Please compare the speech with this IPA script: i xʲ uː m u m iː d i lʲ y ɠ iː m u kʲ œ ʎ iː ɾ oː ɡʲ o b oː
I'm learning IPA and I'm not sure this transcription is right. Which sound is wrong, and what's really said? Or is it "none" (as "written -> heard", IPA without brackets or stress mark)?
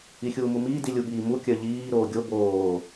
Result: y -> u